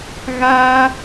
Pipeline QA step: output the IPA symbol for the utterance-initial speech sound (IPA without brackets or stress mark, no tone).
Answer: ɣ